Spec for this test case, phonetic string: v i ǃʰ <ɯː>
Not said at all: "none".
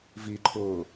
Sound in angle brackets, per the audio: ʊː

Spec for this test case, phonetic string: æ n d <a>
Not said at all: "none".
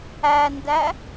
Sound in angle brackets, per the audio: æ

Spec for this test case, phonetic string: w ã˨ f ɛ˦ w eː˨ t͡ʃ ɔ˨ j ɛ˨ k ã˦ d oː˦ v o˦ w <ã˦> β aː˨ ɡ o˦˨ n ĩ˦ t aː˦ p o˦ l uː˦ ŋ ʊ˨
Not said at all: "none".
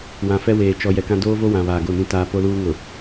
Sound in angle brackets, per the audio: ã˨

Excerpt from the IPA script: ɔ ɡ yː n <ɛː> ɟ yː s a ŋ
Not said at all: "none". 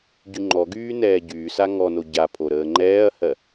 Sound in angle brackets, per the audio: ɛː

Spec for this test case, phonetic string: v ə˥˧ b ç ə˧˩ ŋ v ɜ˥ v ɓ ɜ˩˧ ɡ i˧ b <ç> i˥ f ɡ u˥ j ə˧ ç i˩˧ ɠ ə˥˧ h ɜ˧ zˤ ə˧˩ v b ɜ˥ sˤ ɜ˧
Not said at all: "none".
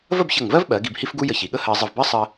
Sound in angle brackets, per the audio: h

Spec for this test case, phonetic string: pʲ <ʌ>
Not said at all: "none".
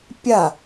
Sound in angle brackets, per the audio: a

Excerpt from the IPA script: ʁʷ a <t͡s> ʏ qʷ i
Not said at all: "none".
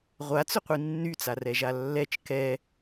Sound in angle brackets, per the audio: t͡s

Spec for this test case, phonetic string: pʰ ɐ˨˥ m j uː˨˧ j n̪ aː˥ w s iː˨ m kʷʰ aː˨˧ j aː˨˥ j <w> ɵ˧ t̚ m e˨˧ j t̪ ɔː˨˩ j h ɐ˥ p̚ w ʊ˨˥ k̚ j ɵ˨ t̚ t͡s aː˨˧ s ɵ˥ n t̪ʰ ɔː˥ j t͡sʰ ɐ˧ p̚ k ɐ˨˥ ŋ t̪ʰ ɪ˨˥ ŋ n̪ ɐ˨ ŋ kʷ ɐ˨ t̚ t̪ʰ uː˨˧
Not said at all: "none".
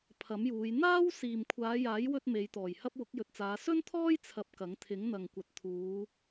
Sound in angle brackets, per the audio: w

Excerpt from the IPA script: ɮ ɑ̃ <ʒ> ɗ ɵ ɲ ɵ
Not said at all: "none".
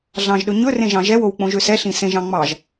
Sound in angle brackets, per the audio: ʒ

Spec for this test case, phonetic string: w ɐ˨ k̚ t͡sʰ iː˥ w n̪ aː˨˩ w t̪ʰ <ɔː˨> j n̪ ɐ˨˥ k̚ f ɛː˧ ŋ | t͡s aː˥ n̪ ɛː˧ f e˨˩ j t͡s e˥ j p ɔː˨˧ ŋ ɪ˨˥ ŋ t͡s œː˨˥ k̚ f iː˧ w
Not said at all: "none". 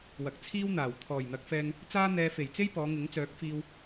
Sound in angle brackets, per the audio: ɔː˨˩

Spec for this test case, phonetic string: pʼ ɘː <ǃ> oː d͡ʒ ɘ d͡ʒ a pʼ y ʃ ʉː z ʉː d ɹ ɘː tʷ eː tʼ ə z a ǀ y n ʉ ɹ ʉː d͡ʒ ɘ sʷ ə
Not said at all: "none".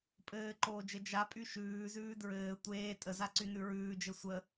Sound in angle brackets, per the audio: ǃ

